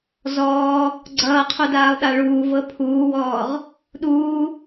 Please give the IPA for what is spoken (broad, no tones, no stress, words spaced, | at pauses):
zɔː | ɡ͡ǀʌːqʰudaːlˠɗa ɭuːvɤ pʰuːwɔːʁ | ɗuː